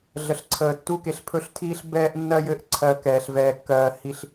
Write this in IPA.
ɮ ə˨ ɬ ǀʰ əː˨ tː u˦ k e˨ ɬ pʰ ɵ˦ ɬ tʰ iː˦ ɬ b ɛː˦ ʔ nː ɜ˦ j ɘ˦ ʔ ǀʰ ɜ˨ k ɛː˨ ɬ v ɛː˨ kː ɜː˨ h i˨ ɬ

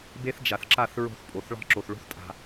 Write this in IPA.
b e˦ θ d͡ʒ a˨ θ ǁ a˦˨ θ ɹ o̤˦˨ θ pʼ o˨ θ ɭ ɑ̤˦ ǁ o˨ θ ɭ o̤˦ θ tʼ a̤˨

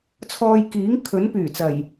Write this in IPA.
t͡sʰ ɔː˧ j k iː˨˥ ŋ kʰ ɵ˨˥ n p yː˨˩ t͡s ɐ˨˩ j

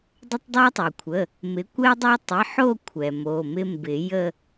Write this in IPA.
dˤ ə˦ tˤ dˤ ɛ˦ tˤ o˩ kʷʰ ə˩˧˩ | m ɪ˩˥ kʷ ɛ˦ dˤ o˦ tˤ ɪ˩˧˩ ħ o˦˨ kʷʰ ɛ˩ m o˩˧˩ m ɪ˦ m b ɪ˨˩˦ j ə˦˨

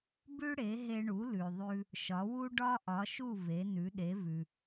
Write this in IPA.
b ʉ˥ ɽ e˩˥ ɦ e˧ ɳ u˩˥ l ʉ˩ ðˤ ʉ˧ | ʃ ɒ˩˥ w u˥ ɖ ɒ˥ ʔ ɒ˩˥ ʃ u˥˩ v e˩˥ n ʉ˩˥ ɗ e˩˥ v ʉ˩

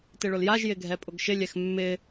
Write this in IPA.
t ɪ ɭ ʊ l j a ʒ j ɪ ɡʱ ɛ pʼ ʊ ɡ ʃ ɪ lʲ ɛ x mː ɪ

